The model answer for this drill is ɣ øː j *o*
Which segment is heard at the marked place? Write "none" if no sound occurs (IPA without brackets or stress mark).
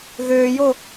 o